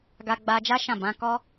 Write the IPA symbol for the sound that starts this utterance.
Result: ɡ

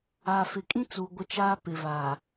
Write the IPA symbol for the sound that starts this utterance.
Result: aː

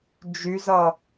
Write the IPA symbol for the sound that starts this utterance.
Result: d͡ʒ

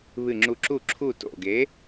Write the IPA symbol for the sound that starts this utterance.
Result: β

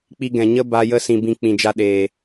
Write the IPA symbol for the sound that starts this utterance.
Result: k͡p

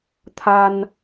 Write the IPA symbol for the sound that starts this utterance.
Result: t̪ʰ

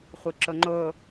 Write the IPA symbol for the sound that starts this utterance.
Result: χʷ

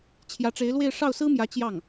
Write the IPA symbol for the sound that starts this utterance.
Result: t͡ɕʰ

